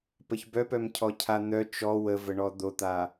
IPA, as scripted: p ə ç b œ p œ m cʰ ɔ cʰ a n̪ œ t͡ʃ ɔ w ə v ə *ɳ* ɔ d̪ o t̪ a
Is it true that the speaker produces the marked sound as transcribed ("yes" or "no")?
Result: yes